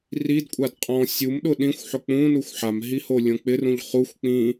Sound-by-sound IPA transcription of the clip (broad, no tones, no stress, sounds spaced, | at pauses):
r i d kʷʼ a d qʼ ɔ̃ sʲ u m ɗ ʊ ɗ ĩ xʷ ħ ʊ k͡p ũ n u xʷ ħ a m ɦ i h o lʲ õ k͡p ɪ r ũ ʎ χ u xʷ k͡p ĩ